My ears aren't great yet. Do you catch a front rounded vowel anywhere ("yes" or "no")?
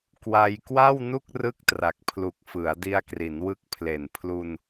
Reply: no